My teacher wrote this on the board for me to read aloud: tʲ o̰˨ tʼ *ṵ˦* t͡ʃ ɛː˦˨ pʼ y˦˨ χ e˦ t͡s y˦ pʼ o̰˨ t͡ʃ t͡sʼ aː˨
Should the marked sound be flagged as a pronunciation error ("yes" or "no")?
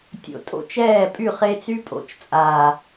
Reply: yes